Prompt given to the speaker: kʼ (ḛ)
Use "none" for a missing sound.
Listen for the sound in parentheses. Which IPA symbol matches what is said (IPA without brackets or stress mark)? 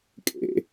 ḛ